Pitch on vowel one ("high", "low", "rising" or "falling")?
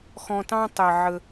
low